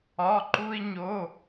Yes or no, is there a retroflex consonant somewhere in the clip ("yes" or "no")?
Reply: no